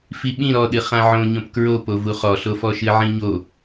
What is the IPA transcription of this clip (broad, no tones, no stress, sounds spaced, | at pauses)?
f i ɓ ĩ ɾ ɔ ɗ ɨ χ ã ʕ õ ɲ õ p k ɹ o p o v u χ ɔ ɬ o f ɔ ʃ ɨ ʕ ĩ ɲ o